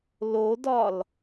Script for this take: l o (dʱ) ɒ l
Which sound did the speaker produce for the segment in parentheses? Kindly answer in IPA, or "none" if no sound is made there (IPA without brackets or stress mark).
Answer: d